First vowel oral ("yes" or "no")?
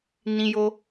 no